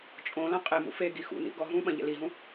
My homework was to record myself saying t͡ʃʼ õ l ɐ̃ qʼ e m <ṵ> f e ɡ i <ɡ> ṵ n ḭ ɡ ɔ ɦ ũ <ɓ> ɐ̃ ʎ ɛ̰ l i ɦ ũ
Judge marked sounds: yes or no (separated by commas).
yes, no, yes